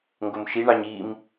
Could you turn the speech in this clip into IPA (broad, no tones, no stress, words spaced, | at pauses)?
ŋɡomʃiɳɑɲ im